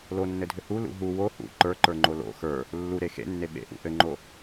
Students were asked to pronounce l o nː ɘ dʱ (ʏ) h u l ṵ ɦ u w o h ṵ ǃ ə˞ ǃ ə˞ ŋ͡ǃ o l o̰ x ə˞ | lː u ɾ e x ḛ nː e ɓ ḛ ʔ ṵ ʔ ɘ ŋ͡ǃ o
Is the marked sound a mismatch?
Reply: no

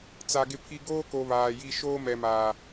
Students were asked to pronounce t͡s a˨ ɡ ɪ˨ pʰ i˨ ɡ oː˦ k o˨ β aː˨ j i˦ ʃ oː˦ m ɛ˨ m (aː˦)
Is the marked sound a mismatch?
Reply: yes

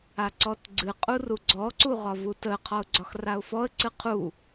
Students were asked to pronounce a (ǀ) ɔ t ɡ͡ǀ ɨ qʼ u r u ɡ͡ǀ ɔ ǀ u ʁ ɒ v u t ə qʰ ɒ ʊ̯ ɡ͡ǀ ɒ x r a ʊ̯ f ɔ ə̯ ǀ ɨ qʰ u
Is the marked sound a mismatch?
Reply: no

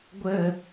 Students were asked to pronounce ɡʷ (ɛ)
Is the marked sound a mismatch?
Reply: yes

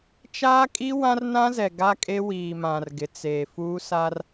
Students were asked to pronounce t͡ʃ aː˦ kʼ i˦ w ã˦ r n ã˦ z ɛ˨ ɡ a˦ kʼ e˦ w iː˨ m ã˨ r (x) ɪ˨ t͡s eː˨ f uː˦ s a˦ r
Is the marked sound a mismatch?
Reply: yes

